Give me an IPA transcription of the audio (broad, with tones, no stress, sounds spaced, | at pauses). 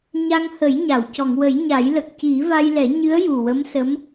ɲ a˧ ŋ h ə˨˩˦ j ɲ a˨˩˨ w c ɔ˨˩˨ ŋ w ə˨˩˦ j ɲ a˨˩˦ j l ə˨˩ k̚ c i˨˩˦ v a˧ j l ɛ˨˩˦ ɲ ɨ˧˥ ə̯ j u˨˩ w ə˧˥ m s ə˧˥ m